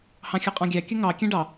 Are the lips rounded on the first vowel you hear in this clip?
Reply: no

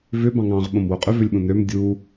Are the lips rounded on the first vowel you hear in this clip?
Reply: yes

